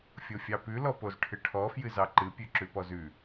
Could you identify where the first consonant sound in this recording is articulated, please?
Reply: labial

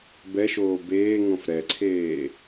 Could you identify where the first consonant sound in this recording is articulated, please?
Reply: labial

